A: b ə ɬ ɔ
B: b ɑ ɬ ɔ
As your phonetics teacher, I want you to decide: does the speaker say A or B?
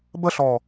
A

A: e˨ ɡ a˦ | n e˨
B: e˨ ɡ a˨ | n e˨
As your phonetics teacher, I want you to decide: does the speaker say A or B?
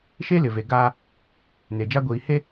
A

